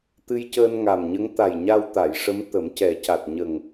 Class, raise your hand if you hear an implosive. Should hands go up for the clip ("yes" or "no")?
no